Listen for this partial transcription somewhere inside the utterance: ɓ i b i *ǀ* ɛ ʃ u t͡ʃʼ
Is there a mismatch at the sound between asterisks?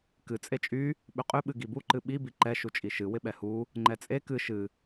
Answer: yes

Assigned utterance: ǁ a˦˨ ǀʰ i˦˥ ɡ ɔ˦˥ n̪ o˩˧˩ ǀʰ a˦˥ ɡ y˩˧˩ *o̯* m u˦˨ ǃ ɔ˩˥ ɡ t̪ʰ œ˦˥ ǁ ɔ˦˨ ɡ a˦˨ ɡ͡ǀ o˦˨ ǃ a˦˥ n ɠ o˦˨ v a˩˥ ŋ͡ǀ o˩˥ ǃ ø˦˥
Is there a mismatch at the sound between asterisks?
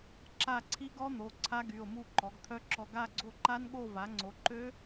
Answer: no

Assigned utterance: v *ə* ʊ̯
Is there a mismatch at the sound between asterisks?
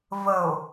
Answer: no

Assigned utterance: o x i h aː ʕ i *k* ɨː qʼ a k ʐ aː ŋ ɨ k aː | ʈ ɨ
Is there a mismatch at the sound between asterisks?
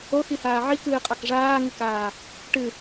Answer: no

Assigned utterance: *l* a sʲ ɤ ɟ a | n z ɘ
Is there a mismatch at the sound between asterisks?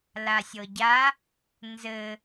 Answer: no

